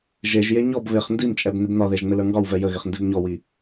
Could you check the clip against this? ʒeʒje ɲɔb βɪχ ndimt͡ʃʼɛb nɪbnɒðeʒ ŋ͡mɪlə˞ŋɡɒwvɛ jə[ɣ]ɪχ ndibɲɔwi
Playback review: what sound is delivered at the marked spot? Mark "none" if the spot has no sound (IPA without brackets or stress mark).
ɣ